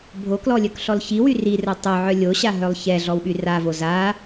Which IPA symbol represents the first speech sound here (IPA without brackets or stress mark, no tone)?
bʱ